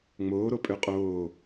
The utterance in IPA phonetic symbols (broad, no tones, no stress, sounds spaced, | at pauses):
ŋ͡m oː ɾ o pʼ ø qʼ oː